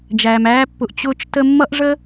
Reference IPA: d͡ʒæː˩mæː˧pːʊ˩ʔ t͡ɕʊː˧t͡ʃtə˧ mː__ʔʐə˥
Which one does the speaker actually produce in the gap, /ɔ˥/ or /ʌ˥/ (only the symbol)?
ʌ˥